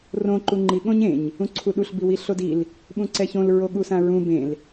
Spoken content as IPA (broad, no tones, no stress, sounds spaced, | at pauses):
r õ ǃ u ŋ͡ǃ i ɠ õ ɲ ẽ ɲ | ũ ǀʰ u ɗ u ɬ b i w i ɬ o d i l | ɓ ũ ǀ ɛ ç õ l ɹ o ɠ u s ã ɹ ũ b ẽ l